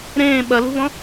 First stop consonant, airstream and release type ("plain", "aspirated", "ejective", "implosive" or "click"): implosive